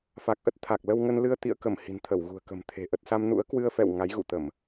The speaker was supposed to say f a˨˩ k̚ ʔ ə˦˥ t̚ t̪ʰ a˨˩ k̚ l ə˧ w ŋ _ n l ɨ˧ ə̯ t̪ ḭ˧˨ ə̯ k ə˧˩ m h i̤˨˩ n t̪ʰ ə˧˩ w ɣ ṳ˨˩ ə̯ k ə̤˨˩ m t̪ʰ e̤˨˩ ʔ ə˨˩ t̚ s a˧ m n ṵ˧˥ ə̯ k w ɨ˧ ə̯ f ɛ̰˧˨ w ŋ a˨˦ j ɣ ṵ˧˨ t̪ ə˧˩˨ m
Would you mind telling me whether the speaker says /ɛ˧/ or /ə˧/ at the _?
ə˧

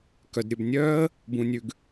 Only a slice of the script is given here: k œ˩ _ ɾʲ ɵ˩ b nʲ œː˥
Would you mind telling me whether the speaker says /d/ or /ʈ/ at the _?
d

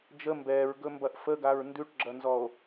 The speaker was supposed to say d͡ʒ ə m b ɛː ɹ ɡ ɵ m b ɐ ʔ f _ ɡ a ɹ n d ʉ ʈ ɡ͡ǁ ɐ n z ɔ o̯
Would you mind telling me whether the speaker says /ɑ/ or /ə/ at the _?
ə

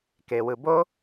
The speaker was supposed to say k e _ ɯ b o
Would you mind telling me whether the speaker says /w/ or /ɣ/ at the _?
w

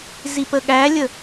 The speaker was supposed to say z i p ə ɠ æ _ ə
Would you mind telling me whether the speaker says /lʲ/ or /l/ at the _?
lʲ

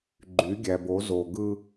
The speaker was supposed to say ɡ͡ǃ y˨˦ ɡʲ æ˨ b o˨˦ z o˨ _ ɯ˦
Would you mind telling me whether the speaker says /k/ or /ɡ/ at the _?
ɡ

